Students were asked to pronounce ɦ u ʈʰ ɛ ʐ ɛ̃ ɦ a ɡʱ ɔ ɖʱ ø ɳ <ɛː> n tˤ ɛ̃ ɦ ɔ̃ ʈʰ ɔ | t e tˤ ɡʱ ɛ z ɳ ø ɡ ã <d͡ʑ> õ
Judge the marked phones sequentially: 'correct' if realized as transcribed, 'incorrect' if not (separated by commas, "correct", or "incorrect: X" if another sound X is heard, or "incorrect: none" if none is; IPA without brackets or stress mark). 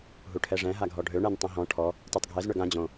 incorrect: ɛ, correct